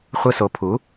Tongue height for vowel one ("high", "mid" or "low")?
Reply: high